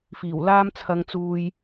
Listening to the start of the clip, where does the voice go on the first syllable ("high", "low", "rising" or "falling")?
low